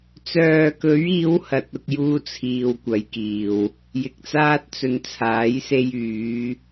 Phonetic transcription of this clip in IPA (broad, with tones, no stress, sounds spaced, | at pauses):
t͡s œː˨ k ɵ˨˧ ɥ iː˨˧ w h ɐ˨ t̚ ʊ˧ k̚ j uː˥ t͡sʰ iː˧ w kʷ ɐ˨˧ j k iː˨ w | j ɪ˨ k̚ t͡s aː˥ t̚ t͡s ɵ˨ n t͡sʰ aː˨˥ j s e˧ j yː˨˧